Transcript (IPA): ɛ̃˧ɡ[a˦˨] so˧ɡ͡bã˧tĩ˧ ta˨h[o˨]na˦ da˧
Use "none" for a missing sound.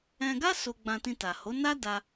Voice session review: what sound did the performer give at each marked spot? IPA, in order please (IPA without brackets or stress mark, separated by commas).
a˦, o˨˦